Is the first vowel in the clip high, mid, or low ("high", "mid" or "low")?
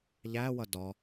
low